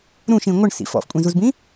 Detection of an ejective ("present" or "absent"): present